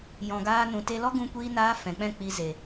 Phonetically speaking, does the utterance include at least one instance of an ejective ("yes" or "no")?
no